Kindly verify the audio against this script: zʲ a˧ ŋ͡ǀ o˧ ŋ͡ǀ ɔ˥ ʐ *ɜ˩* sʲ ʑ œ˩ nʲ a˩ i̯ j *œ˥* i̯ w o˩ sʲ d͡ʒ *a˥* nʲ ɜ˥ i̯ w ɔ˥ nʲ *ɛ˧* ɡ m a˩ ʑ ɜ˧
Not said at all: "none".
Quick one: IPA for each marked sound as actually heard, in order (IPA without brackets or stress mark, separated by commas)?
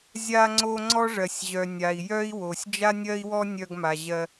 ɜ˩, œ˥, a˥, œ˧